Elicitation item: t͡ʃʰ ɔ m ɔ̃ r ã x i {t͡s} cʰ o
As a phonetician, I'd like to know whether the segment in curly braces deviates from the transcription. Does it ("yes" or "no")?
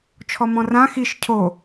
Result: yes